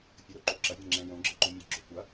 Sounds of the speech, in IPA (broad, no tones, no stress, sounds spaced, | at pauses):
fʲ ə ɾ o ǃ o ǁ ɐ vʲ ɛ̃ ŋ͡ǁ ɛ̃ j õ ɡ͡ǁ ɘ ǃ õ mʲ ɘ ɡ͡ǁ o kʷ ɐ